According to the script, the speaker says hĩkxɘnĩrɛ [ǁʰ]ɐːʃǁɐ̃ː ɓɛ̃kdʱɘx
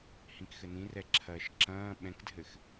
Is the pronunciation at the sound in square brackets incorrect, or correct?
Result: correct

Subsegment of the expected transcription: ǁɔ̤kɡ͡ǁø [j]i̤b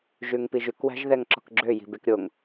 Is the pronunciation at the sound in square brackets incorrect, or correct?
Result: correct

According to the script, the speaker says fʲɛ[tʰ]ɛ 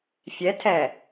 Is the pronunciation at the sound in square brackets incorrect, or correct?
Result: correct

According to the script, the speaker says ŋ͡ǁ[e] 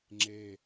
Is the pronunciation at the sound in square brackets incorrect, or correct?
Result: correct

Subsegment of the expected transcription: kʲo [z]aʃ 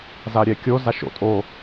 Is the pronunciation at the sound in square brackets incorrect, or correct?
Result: correct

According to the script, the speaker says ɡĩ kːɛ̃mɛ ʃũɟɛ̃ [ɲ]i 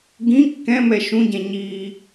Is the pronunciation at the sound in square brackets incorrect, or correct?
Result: correct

